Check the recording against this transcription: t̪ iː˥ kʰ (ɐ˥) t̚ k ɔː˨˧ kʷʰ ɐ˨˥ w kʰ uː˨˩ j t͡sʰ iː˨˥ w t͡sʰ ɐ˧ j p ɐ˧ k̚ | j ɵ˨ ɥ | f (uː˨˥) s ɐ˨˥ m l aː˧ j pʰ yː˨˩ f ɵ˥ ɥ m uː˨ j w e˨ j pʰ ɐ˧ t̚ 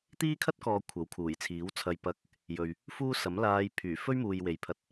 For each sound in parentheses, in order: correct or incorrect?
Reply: correct, incorrect: uː˥

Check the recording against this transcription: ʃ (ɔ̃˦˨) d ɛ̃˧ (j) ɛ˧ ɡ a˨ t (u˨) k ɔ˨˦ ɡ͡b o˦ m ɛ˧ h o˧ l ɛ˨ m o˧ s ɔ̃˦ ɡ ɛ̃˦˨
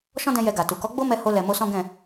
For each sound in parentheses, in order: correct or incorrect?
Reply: incorrect: ɔ̃˦, correct, correct

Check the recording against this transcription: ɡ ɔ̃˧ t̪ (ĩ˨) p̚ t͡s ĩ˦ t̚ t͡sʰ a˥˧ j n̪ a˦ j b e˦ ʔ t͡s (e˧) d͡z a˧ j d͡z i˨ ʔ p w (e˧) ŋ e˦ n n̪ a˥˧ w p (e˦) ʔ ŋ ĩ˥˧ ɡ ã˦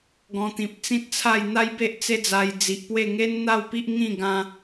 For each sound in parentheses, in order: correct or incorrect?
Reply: correct, incorrect: e˦, incorrect: e˥˧, incorrect: i˦

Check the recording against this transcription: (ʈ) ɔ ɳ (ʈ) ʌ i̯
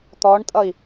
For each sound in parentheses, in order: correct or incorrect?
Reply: incorrect: t̪, incorrect: tʼ

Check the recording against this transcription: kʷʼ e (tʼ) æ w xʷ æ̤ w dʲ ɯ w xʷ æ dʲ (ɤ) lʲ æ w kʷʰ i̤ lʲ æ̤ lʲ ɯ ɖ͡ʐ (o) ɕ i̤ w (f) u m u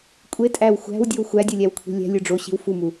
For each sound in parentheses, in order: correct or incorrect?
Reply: correct, incorrect: ɯ, correct, correct

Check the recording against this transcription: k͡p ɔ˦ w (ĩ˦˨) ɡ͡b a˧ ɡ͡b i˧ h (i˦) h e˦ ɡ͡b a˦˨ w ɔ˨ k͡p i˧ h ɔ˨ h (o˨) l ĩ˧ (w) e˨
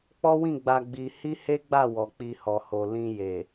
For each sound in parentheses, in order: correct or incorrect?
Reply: correct, correct, correct, incorrect: j

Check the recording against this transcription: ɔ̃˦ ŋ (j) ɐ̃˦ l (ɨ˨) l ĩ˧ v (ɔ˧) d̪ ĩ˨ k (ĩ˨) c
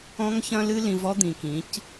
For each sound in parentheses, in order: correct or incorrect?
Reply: incorrect: ç, incorrect: ɨ˦, incorrect: ɔ˦, incorrect: ĩ˨˦

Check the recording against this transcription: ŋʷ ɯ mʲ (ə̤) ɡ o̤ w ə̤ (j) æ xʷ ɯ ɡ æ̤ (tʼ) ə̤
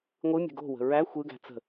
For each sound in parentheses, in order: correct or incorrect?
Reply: correct, incorrect: ɹ, incorrect: t͡s

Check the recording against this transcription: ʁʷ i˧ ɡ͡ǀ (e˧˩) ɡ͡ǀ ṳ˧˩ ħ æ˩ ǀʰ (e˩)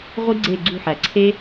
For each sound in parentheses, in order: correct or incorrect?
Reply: correct, incorrect: e˧

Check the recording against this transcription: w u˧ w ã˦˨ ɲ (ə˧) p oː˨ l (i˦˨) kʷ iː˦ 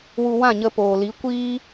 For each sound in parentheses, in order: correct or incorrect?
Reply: correct, incorrect: i˨˦

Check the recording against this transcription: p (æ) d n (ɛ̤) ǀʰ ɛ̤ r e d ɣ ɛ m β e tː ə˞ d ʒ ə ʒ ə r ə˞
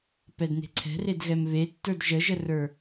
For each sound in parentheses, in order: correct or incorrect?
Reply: incorrect: ɛ, incorrect: e̤

